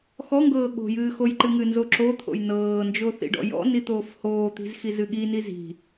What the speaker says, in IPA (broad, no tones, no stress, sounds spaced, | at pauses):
x ɔ ŋ ɡ ɤː ɠ o̤ j ɨː x o j ǃ ɨ ŋ ɨ n z o ǁ o t̪ʰ o̰ j n ɤː n d͡ʒ o θ ḭ ɖ ɔ̰ j ɔ̰ n i t̪ oː f h oː t̪ i̤ z x i z ɨ ɠ i n i z i̤